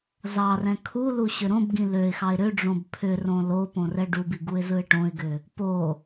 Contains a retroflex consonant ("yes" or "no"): yes